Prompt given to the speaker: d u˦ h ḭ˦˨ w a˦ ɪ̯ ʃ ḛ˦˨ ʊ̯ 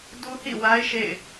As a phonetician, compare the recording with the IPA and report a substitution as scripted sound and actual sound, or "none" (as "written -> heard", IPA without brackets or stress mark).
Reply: ʊ̯ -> ɪ̯